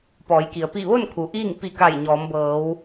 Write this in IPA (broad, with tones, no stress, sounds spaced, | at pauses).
p ɔː˩˧ j k i˩ ə̯ p i˧˩ ʋ o˥˨ n kʰ u˩ ʔ iː˥˨ ŋ p i˧˩ k a˧˩ j ɲ ɔː˩˧ m b ɤː˩˧ w